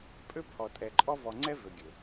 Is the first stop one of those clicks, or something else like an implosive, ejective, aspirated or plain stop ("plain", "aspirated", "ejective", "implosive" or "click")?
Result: ejective